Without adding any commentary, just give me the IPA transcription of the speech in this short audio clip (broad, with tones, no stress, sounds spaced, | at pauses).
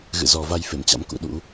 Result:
ɣ ɨ̰˧˨ z ɔ˨˩ v a˧ j f e˧˩ m t͡ɕ a̰˧˥ m k ṵ˧˥ ɗ ṵ˧˥